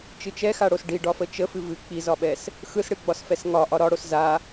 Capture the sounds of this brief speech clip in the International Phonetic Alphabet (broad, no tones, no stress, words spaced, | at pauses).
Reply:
t͡ʃɨt͡ʃɛxaɽos ɖi ɖɒfət͡ʃə fɨvɨ k͡pizɒɓɛs | xɯsɽɨɡ͡bɒsfɛs ŋɒ ʔɒɾɒɽos za